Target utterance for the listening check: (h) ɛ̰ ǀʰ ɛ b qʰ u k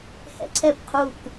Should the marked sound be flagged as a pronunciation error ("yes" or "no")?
no